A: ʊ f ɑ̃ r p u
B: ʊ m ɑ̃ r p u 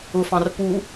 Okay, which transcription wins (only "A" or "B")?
A